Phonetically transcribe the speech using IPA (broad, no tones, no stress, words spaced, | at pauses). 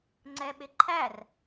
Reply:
ŋ͡ǀɛɓɪǃʰær